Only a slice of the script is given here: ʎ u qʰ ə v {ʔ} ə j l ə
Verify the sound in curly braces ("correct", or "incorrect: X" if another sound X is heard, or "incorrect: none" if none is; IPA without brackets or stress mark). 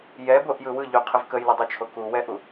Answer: incorrect: k